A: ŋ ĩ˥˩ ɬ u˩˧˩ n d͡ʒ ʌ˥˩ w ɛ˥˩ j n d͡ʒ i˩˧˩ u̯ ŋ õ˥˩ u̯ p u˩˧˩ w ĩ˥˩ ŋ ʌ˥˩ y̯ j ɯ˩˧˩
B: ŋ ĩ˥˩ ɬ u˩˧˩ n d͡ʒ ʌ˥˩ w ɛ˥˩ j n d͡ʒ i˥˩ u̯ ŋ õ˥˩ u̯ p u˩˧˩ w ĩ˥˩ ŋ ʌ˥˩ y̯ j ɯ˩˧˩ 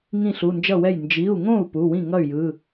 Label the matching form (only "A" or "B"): A